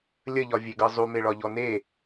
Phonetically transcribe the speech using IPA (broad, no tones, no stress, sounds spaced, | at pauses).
lʲ ə ʎ ɒ vʲ e ɡ ɤ zˤ u m e ɭ ɒ ʎ ɔ n e